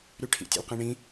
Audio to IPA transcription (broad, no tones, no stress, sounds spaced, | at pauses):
ɾ y ʈʰ ḭ tʲ ḛ l q ĩ ɳ ĩ